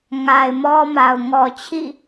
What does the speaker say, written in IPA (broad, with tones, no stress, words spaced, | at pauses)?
ŋa˨ɪ̯mɔ˦ma˨ʊ̯ ŋɔ˨t͡ɕʰḭ˦˨